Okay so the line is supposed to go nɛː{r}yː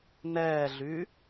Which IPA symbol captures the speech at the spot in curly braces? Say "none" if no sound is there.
ɮ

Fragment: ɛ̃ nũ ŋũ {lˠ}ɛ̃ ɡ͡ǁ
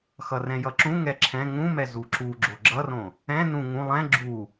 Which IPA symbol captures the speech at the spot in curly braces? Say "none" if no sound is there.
lˠ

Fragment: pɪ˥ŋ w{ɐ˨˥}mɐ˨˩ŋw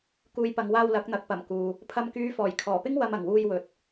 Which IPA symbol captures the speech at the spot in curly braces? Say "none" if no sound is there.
ɐ˧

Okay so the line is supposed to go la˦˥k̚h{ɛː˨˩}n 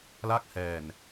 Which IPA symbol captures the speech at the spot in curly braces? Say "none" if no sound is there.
ɛː˨˩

